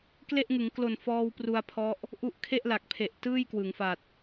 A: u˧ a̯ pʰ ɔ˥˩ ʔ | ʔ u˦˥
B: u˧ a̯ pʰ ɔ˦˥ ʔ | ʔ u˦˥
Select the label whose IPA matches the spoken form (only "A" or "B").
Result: B